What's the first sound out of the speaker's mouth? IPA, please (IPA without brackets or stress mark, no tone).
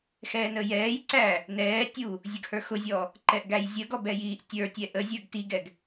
x